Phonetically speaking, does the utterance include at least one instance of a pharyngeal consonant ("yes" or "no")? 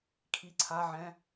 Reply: yes